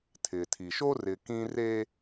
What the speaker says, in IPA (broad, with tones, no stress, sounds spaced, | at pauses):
tʰ ɪ˨ tʰ i˨ ʃ o˦ r ɪ˨ k ĩ˦ r e˦